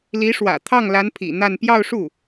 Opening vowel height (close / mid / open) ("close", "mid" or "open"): close